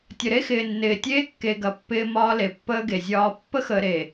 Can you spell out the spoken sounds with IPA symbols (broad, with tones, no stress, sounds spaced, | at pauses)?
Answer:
tʲ ə˨ ɾ e˦ x ɪː˨ nː ɪː˨ tʲ eː˦ kː e˨ ɡ ɐ˨˦ pː ɪː˦ m ɒː˦ l e˨ pː əː˦ ɡ e˨ zʲ ɒː˦ pː ə˦ x əː˨ ɾ e˨